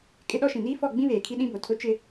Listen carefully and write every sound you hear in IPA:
kʼ ɪ˦ ɗ ɔ˦ ʃ ĩ˨ n iː˦ f ɔ˦˨ ɡ͡b ĩ˦ β eː˨ kʰ i˦ ɗ ĩ˦ b o˨ tʰ ʊ˦ t͡ʃ ɪ˦

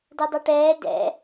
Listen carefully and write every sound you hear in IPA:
d ɛ dˤ ɤ ʈ ɛː d ɛ̰

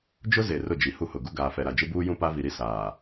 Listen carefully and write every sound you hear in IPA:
d͡ʒ ʊ˦ z e˨ r ʊ˦˨ d͡ʒ i˨ h u˦ h ʊ˨ ɡ u˦ ɡ aː˨ f ɛ˨ ɾ a˨ d͡ʒ ɪ˦ b uː˦ j ũ˦ p a˦ v i˨ ɾ i˦ s aː˨

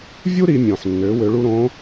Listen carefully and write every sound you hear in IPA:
vʲ u˥ ɾ i˩˧ mʲ õː˩ ħ nː øː˩˧ w ø˩˧ ɭ u˧ ɾ õ˧˥

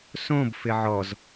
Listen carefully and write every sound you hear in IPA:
s õ b f ɪ ʕ ɔ z

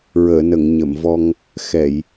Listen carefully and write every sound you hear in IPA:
ɹ əː˨˩˨ n ə˨˩˨ ŋ ɲ ə˨˩˨ m v ɔ˧ ŋ | x ɛ˨˩˨ j

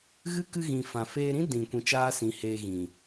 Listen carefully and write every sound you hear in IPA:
ɣ ɨ˦ k ɨ˧ ɣ ĩ˨ f ã˨ f eː˧ ɾ ĩ˦ d ĩ˨ kʷ ĩ˧ t͡ʃ aː˦ s ĩ˨˦ h eː˧ ɣ ĩ˨

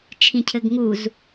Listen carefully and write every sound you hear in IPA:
t͡ʃʰ ĩ cʰ ɘ ɡ ŋ u z

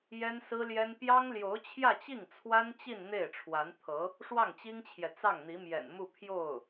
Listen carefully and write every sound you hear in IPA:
j ɛ˥ n s ɹ̩˥ l j ɛ˥ n p j ɑ˥ ŋ l j o˧˥ ʊ̯ t͡ɕʰ j ä˥˧ t͡ɕ i˥˩ ŋ t͡sʰ w a˥ n t͡ɕ i˥˧ n n̪ e˥˩ ɪ̯ ʈ͡ʂʰ w a˧˥ n t̪ʰ ɤ˧˥ | ʂ w ɑ˥˩ ŋ t͡ɕ i˥ ŋ t͡ɕʰ j ɛ˨ t͡s ɑ˥˩ ŋ n̪ i˧˥ m j ɛ̰˨˩ n m u˥˧ pʰ j o˥˩ ʊ̯

